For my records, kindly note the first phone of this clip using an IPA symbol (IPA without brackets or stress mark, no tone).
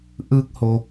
ʔ